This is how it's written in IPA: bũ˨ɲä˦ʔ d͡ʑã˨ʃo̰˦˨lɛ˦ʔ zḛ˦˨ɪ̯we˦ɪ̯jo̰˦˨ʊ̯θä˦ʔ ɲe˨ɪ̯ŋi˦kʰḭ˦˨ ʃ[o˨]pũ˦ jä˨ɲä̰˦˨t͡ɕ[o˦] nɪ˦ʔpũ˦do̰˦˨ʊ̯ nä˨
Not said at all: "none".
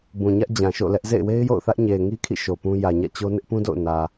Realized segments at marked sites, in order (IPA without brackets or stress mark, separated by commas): o˨, o˦